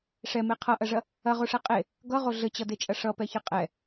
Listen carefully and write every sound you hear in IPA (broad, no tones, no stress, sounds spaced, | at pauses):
ʂ ɛ m e qʰ ʌ ʔ ɐ ʐ ɐ | ɐ ʁ o ʂ ɛ qʼ e | ɡ ʌ ʁ o ɮ ɘ t͡ɕ ʌ d e t͡ʃʼ ɐ ʂ ʌ p ɛ ç ɘ qʼ ɛ